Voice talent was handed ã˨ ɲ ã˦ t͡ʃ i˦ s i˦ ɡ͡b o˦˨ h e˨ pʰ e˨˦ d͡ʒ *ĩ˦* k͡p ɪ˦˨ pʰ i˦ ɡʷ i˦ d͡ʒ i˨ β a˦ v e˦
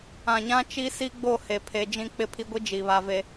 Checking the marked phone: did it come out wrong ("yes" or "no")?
no